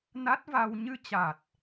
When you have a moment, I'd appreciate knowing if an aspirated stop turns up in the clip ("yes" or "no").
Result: no